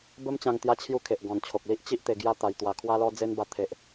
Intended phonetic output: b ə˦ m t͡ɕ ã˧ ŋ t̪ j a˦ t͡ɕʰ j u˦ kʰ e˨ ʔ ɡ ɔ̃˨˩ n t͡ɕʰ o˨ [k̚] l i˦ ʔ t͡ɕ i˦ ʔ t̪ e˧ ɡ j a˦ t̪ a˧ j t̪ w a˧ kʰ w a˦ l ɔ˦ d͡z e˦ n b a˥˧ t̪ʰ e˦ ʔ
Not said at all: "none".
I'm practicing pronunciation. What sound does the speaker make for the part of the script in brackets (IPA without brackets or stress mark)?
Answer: k̚